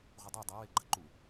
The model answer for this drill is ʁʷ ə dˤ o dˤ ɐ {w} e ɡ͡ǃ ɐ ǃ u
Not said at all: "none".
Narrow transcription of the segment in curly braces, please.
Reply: w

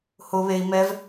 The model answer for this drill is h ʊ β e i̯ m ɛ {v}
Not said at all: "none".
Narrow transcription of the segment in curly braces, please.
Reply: v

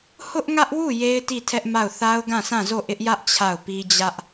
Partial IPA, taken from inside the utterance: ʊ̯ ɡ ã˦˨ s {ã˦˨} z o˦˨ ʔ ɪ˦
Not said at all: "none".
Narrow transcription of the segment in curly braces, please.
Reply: ã˦˨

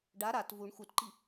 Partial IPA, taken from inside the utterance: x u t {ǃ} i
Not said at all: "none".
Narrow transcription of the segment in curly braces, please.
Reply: ǃ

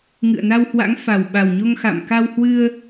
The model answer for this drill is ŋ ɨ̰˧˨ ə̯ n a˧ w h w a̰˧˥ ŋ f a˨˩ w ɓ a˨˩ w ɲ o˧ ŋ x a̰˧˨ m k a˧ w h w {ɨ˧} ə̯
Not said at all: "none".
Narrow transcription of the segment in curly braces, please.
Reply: ɨ˧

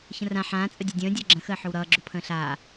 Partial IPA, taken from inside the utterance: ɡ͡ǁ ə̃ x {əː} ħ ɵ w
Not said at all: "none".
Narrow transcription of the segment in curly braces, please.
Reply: əː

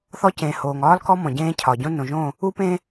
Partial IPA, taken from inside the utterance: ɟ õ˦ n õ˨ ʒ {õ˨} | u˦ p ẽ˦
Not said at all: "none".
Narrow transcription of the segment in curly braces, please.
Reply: õ˦˨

